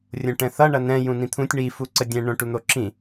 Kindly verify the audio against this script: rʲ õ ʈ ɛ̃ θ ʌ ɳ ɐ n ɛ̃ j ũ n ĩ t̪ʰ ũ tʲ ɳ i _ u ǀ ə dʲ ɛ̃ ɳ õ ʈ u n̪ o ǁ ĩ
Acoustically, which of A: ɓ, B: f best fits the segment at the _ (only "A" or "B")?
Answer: B